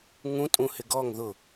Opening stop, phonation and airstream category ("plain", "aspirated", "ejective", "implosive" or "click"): ejective